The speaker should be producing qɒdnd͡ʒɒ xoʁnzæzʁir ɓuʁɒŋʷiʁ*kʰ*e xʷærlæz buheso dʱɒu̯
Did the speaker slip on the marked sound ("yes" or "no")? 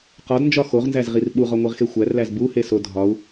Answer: yes